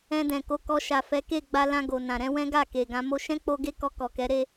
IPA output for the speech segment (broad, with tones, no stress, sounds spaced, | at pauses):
ɛ̃˧ d ɛ̃˨ k o˧ k ɔ˧ ʃ a˨ f ɛ˨˦ k e˦˨ ɡ͡b a˧ l ã˧ ɡ o˨ n ã˨ ɾ ɛ̃˨˦ w ɛ̃˦ ɡ a˦˨ k e˨ ɡ ã˧ m o˧ ʃ ɛ̃˦ k͡p o˧ ɡ e˦ k ɔ˧ k ɔ˨ k ɛ˨˦ ɾ e˦